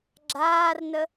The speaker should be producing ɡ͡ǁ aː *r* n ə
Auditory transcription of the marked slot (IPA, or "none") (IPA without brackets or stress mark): r